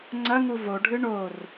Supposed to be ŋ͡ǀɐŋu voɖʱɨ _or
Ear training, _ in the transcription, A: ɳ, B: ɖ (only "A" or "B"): A